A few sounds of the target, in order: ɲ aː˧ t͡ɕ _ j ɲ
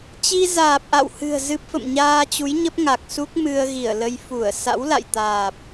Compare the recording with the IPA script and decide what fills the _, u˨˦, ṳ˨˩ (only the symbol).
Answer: u˨˦